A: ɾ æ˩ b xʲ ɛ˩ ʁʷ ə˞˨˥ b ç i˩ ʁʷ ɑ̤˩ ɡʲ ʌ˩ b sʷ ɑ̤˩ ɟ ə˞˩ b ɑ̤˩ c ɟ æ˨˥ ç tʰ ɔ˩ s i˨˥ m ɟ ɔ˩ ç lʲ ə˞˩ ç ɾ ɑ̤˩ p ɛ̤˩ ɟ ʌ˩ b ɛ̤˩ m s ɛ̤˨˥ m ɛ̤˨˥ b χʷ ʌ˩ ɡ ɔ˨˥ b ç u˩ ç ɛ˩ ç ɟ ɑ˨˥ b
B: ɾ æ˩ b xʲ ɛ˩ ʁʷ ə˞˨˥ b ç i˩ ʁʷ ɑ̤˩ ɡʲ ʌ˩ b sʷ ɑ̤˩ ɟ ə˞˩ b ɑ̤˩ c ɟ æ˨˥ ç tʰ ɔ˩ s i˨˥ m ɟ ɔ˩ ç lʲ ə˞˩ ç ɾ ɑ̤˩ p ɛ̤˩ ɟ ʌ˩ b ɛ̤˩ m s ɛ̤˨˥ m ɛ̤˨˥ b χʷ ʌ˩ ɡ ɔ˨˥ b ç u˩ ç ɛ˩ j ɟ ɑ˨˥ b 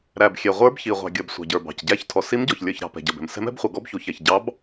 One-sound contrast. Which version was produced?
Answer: A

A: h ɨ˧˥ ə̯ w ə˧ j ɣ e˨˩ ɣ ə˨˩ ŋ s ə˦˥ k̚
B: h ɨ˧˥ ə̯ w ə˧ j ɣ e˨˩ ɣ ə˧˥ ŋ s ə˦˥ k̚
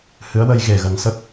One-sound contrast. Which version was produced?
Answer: A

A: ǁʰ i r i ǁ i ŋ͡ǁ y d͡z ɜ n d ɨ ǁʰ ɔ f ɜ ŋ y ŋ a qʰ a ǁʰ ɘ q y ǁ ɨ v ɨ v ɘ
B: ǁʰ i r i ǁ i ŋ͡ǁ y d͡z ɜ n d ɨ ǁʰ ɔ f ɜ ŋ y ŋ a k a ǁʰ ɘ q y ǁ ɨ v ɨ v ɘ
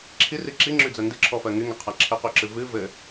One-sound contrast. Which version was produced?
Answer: A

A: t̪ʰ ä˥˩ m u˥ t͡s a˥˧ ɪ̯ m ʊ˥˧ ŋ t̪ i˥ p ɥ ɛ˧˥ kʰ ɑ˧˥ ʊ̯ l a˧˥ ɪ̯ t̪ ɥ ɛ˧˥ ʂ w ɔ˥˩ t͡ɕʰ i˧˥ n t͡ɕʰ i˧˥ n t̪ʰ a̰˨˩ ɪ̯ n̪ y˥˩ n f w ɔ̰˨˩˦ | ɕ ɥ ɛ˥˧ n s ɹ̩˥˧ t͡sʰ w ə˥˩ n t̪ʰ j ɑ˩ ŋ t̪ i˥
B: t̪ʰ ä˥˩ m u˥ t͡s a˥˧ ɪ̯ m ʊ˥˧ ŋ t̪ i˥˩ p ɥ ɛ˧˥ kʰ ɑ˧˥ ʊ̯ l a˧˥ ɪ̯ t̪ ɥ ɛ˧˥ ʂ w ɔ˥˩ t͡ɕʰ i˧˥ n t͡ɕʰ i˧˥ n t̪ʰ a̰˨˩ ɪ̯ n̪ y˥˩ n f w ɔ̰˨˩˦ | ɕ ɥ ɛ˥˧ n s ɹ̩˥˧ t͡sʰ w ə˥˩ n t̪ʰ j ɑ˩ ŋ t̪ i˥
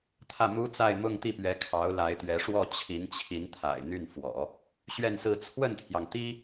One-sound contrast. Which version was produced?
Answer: B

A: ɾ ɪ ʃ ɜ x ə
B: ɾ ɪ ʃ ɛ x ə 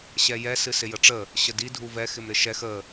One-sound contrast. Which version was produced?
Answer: B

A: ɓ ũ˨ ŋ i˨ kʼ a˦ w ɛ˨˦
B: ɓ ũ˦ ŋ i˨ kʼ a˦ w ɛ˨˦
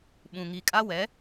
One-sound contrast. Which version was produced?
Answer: A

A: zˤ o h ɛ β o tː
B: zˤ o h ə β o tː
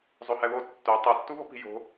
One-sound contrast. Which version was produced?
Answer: A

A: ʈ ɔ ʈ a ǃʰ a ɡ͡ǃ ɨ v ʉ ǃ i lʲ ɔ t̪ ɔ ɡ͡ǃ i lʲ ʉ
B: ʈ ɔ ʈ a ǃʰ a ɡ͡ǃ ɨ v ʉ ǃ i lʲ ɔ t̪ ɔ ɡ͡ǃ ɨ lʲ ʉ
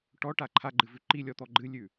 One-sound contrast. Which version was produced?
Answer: B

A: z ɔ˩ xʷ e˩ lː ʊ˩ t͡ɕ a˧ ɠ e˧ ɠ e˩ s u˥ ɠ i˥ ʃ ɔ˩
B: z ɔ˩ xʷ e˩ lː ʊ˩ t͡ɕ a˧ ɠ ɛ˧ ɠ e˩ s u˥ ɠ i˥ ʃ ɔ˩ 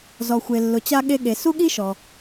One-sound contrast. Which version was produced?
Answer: A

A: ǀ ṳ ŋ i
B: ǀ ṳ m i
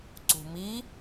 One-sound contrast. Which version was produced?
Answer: B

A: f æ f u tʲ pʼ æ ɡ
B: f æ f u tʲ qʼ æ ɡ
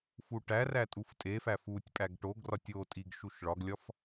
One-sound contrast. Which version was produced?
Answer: A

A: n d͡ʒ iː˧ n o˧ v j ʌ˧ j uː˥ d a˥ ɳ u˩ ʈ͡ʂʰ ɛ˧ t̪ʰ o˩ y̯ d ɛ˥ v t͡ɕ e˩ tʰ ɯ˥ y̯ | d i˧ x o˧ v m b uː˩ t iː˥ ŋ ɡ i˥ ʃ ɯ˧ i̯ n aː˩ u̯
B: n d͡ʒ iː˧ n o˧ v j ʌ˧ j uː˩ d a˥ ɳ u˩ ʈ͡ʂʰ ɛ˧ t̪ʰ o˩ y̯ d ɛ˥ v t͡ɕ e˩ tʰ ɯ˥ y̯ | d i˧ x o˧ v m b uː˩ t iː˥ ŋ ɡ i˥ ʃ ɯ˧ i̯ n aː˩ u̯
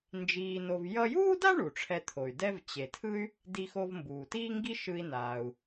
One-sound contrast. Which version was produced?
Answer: A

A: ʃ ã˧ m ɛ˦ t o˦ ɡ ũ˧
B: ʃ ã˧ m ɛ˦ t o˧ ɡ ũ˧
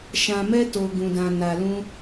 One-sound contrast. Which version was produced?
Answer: B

